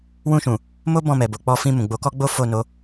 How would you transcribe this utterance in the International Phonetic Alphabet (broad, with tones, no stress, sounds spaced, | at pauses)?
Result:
w ũ˧ ʃ ũ˨ | m o˦ b ɔ̃˦˨ m ɛ˨ b o˨ k͡p ɔ˧ f ĩ˧ m ũ˨ ɡ͡b o˨˦ k ɔ˦ ɡ͡b o˦ f o˦˨ n o˨˦